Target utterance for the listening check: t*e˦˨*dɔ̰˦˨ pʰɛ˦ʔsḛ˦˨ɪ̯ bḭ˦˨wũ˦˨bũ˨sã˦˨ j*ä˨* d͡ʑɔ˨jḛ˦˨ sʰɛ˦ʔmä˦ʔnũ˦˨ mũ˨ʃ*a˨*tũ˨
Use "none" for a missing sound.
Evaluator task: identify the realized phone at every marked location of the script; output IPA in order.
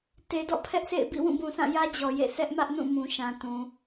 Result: e˨, ä˦, ã˨

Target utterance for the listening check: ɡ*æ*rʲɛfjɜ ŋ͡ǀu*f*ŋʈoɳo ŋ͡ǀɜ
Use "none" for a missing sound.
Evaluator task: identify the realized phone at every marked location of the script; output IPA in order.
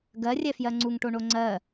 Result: ɜ, none

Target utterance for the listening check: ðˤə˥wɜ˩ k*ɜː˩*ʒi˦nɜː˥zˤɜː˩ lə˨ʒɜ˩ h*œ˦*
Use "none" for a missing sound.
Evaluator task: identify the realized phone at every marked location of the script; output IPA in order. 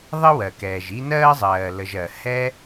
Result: ɛː˩, ɛ˦

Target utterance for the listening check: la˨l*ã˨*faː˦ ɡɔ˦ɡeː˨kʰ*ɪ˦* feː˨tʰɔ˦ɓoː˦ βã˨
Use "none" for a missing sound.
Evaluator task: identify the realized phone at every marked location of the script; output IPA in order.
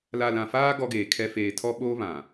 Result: ã˨, ɛ˦

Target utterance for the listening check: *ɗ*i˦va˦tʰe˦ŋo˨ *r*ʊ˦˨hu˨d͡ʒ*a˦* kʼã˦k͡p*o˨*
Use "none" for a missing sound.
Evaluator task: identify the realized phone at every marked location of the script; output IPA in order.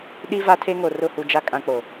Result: ɗ, r, a˦, o˨

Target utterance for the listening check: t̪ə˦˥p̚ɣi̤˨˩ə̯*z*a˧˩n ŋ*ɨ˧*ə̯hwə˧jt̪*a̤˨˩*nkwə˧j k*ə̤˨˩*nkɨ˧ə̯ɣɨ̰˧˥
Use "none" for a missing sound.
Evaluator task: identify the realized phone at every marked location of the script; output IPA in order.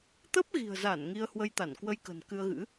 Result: z, i˧, a˧˩, ə̤˨˩

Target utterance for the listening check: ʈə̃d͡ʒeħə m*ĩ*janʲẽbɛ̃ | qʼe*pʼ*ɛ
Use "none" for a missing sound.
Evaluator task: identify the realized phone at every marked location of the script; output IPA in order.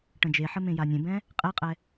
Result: ẽ, qʼ

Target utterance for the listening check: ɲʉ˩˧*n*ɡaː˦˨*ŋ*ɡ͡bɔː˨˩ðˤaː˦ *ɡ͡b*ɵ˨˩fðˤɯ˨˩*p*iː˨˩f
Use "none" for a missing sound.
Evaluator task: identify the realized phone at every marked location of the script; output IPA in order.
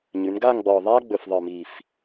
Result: n, ŋ, ɡ͡b, m

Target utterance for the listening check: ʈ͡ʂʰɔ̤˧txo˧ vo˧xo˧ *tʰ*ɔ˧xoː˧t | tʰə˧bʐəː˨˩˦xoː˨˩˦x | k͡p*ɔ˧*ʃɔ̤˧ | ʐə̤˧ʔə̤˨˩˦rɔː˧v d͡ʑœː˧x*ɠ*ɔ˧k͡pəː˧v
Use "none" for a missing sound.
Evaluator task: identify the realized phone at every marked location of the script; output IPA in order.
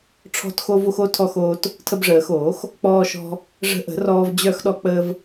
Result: tʰ, ɔː˧, ɗ

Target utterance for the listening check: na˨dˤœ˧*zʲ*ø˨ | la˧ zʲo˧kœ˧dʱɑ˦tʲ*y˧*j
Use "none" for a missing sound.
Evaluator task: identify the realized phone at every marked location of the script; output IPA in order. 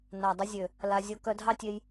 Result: zʲ, e˧

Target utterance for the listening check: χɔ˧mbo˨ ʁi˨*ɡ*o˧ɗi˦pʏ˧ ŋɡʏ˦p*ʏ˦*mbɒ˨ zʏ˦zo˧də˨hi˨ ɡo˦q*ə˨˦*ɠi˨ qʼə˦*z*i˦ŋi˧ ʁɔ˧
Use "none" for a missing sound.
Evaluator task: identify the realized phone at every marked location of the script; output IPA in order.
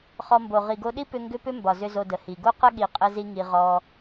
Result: ɡ, ʏ˦, ə˦, z

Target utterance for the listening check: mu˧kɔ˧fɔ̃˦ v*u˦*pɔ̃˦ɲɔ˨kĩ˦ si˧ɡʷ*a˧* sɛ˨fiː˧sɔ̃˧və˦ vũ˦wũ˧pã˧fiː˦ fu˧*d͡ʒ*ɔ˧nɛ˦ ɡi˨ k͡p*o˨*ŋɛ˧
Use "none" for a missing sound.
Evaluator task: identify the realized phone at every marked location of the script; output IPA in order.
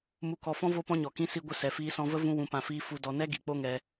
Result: o˦, ə˧, d, o˦

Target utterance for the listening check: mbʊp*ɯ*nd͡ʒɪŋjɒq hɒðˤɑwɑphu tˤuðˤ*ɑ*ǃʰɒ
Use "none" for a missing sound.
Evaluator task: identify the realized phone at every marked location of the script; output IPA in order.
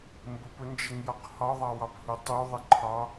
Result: ʊ, ə

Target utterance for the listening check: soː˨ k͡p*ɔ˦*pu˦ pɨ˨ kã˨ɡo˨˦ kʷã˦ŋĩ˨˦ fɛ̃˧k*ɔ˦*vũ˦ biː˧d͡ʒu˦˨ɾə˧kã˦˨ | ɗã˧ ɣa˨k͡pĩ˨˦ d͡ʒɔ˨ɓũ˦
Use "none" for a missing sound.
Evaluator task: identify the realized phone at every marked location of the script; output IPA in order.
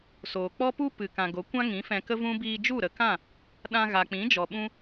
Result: ɔ˦, ə˦

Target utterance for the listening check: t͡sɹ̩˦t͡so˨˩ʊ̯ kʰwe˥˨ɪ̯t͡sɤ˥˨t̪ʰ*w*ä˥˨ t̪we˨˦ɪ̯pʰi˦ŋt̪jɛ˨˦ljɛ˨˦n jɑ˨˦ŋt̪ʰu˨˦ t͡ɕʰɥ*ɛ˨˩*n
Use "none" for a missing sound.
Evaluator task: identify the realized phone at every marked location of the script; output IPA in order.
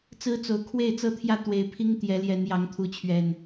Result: j, ɛ˨˩

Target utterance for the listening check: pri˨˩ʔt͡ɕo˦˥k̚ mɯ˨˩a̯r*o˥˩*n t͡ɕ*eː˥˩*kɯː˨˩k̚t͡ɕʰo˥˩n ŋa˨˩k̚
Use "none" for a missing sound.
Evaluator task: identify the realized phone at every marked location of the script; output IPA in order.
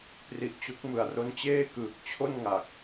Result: o˦˥, eː˥˩

